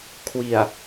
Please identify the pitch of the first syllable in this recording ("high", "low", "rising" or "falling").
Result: low